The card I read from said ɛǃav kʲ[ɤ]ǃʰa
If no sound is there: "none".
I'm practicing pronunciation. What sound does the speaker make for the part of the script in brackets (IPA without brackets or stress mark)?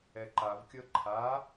ɤ